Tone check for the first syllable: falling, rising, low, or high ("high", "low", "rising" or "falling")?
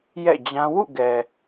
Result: falling